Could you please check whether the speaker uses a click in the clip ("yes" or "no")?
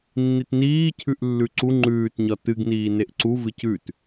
yes